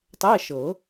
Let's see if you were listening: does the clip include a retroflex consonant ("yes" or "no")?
no